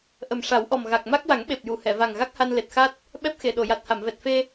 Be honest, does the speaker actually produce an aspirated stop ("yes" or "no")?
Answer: no